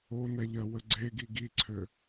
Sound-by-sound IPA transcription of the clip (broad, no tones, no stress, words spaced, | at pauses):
onɛ ʎɜwəɡ͡ǀeɡi ɡiǀʰø